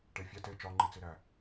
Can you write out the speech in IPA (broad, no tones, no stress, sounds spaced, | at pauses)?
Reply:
ʈ e fʲ æ t e t͡ʃ ɒ ŋ͡ǃ i t͡s i ɾ æ